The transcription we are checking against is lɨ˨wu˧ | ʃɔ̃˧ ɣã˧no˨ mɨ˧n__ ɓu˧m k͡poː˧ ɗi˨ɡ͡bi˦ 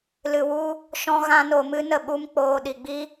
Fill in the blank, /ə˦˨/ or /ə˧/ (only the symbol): ə˦˨